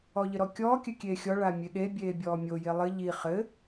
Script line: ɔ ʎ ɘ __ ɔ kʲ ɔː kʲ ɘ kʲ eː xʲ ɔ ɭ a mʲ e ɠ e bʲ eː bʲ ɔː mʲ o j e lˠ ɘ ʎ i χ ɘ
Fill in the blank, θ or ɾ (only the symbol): ɾ